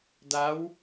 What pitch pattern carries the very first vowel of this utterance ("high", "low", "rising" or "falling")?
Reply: rising